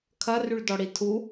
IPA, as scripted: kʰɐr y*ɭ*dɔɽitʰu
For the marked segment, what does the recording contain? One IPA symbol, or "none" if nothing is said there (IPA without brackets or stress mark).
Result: ɭ